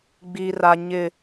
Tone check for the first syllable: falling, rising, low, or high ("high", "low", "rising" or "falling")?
low